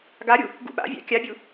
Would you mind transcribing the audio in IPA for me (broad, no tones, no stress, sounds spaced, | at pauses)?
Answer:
ɡ a ɾʲ u | ɡ ṵ ɓ a̰ vʲ a̰ kʲ a bʲ u